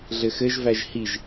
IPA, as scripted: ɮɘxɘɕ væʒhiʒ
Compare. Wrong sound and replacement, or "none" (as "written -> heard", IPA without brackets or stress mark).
ɕ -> ʒ